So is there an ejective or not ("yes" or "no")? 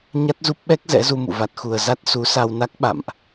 no